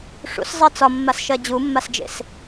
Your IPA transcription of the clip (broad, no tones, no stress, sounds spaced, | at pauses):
ʂ ṵ s zˤ ɜ t͡s ɒ mː a s ʃ ɜ d͡ʑ u mː a s d͡ʒ ḛ s